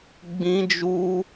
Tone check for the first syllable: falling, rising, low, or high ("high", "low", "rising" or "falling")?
high